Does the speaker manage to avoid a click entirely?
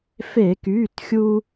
yes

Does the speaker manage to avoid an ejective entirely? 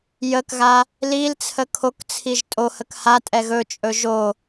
no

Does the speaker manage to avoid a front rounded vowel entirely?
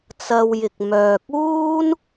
no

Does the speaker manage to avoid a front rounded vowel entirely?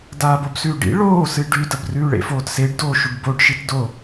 yes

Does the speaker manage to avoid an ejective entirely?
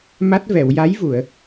yes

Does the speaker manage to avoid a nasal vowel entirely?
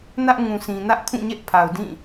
no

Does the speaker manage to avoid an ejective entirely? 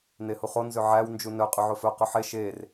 no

